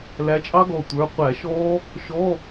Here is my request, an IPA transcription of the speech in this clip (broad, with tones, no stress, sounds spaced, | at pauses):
l æ˨˦ t͡ʃʼ ɑ˦˥ ɡ ɔ˧˩ tʷ ə˞˩˧˩ qʷ æ˧˩˧ ʃ ɔː˦˥ | ʃ ɔ˧˥˧